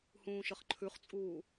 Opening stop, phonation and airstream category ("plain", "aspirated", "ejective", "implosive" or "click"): click